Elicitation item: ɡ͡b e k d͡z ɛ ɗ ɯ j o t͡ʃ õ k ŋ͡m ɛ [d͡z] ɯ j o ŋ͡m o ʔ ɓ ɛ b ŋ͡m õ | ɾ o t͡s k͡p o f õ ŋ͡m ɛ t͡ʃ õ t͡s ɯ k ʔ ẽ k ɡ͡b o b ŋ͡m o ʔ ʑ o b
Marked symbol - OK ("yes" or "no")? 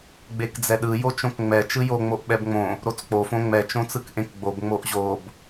no